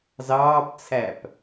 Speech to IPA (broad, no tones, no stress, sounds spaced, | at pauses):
z ɑː p t͡sʰ æ p